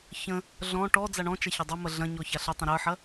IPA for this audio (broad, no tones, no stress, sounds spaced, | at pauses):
ç ə̃ | ɮ ɔ̃ ʈ ɔ d͡z a ɳ ɔ̃ t͡ʃ a ç ɐ dˤ ə m ɐ ɮ ɐ̃ ɲ ɔ ç a ɬ ə tˤ ə̃ ɾ ə˞ ħ ɐ